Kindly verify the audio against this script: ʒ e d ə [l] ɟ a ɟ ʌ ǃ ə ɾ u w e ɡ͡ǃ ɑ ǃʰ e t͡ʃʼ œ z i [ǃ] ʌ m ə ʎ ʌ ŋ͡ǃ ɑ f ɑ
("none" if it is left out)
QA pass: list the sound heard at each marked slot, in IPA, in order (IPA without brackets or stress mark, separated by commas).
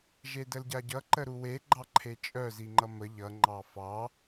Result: l, ŋ͡ǃ